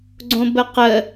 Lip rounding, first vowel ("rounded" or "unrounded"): rounded